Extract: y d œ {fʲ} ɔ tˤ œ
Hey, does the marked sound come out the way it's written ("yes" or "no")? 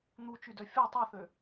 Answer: yes